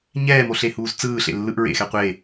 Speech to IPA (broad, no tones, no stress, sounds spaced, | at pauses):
ɲ ɛː m o ɬ e h uː z t͡s ɯː ɬ ḛ lː ɯ ʔ ɹ ḛ x ɛ qʷ e